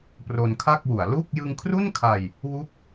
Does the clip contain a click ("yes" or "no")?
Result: no